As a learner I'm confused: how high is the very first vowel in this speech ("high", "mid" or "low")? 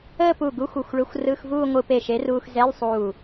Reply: mid